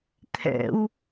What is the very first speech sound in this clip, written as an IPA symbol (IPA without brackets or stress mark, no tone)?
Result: t̪ʰ